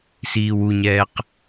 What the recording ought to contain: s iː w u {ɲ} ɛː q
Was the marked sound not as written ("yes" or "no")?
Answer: no